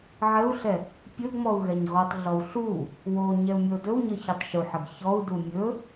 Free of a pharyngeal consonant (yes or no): no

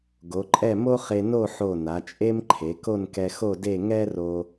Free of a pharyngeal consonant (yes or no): no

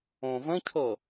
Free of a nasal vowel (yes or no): no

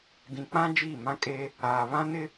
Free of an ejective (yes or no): no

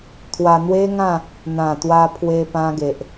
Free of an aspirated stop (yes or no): no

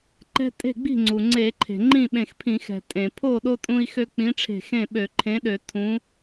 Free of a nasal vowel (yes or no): no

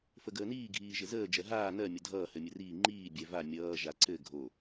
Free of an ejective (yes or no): yes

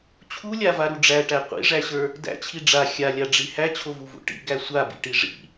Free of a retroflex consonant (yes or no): no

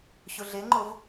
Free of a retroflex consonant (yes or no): yes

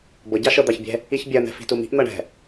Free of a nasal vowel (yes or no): yes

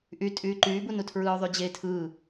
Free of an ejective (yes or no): no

